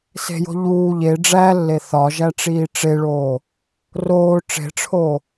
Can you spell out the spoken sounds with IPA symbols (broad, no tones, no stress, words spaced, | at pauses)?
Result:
se̤jo̤ ʎuː ʎe ɖ͡ʐælːe θɒ ʒæʈ͡ʂiːʈ͡ʂeɭoː | roː ʈ͡ʂe̤ʈ͡ʂʰoː